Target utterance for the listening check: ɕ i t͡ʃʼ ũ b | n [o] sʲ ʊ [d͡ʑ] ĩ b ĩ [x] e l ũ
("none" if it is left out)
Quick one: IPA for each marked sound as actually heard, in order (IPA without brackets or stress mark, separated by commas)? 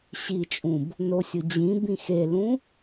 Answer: o, d͡ʑ, x